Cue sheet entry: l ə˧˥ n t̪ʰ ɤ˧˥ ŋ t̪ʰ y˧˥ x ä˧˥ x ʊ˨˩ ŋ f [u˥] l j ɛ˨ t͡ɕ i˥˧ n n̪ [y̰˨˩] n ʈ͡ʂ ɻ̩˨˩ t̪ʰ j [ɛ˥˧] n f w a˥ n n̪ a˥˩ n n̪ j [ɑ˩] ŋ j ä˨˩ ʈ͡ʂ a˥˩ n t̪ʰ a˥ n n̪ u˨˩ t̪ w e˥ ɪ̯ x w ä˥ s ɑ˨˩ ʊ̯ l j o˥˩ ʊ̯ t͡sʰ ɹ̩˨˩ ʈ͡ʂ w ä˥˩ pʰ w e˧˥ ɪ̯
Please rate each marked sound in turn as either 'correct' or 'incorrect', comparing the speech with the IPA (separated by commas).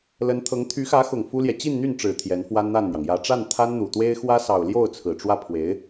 correct, incorrect, incorrect, correct